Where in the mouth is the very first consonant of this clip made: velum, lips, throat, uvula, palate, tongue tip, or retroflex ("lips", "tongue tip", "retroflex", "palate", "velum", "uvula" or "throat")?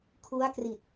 velum